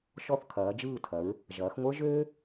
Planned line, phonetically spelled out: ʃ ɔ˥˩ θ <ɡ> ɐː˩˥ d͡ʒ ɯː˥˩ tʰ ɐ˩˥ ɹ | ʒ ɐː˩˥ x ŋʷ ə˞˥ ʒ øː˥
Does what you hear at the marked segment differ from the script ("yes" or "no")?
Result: yes